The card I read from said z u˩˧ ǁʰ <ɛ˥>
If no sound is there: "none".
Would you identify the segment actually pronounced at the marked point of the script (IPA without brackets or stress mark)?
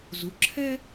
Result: ɛ˥